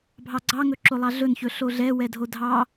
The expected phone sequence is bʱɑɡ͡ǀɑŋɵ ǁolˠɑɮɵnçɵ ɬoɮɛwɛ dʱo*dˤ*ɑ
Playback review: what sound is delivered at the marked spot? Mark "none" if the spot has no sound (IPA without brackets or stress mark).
dʱ